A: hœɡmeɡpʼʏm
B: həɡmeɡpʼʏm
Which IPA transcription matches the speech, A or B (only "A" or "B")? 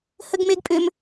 B